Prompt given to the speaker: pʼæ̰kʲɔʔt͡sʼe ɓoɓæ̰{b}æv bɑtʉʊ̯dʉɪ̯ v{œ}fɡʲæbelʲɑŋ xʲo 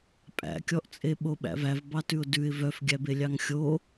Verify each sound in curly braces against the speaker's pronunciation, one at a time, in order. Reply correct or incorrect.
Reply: incorrect: v, correct

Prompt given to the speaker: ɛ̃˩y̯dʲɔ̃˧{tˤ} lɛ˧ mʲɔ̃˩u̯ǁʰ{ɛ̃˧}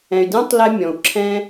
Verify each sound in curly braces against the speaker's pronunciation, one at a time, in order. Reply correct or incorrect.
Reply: correct, correct

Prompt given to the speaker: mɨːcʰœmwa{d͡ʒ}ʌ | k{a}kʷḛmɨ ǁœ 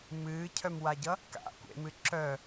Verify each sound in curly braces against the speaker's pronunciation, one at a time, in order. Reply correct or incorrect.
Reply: incorrect: ɟ, incorrect: a̰

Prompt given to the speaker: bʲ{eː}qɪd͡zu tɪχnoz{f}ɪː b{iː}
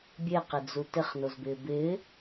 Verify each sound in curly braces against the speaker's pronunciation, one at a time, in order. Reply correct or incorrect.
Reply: incorrect: e, incorrect: b, incorrect: ɪː

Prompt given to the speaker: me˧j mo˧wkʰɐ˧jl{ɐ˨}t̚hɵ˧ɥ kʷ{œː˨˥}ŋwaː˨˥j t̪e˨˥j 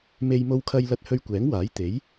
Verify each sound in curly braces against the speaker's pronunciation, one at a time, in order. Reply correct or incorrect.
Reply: incorrect: ɐ˧, incorrect: ɛː˨˥

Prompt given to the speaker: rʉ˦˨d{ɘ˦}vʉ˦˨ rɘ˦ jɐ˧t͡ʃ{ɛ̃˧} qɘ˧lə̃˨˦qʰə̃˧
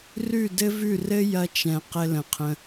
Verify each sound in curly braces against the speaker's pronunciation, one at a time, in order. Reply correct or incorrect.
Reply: correct, incorrect: ɛ̃˨

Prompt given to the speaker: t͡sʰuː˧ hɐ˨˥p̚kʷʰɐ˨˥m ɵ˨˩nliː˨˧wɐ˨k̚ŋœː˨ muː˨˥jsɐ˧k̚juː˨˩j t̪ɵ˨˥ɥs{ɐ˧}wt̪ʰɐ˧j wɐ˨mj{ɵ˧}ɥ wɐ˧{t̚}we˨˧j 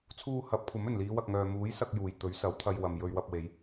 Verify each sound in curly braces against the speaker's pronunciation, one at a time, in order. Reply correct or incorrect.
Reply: incorrect: ɐ˨˥, correct, incorrect: p̚

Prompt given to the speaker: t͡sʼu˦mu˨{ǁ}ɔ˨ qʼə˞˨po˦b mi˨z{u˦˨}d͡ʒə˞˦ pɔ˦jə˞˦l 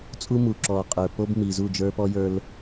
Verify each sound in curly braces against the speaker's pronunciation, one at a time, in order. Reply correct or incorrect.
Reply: correct, correct

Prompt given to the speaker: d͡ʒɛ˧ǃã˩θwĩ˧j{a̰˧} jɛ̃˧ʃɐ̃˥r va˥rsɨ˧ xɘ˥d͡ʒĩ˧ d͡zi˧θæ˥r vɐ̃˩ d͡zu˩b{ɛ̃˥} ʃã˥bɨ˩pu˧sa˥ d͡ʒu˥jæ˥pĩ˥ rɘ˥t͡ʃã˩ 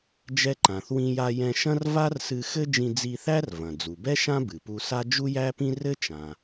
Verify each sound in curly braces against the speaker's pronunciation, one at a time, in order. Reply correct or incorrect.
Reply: incorrect: a˧, incorrect: ɛ˥

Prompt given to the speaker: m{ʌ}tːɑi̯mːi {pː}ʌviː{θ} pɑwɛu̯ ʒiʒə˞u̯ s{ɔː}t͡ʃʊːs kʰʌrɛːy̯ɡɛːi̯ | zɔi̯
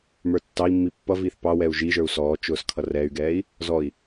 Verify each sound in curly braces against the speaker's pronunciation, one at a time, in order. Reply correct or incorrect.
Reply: incorrect: ə˞, correct, correct, correct

